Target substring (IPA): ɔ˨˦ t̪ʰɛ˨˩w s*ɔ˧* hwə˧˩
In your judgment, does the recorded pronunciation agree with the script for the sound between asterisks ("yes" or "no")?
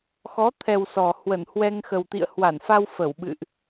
no